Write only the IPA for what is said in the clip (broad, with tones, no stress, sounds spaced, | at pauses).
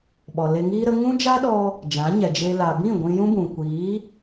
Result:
ɓ ɔ˨ l e˧ ŋ iː˧ ɾ ə˧ ŋ ũ˦ d͡ʒ a˦ ɗ ɔ˧ | d͡ʒ ã˨˦ ɲ ɛ˨ d͡ʒ e˧ l a˨ b ĩ˦˨ ɡʷ ĩ˧ j ũ˦ b ũ˨ kʷ iː˨˦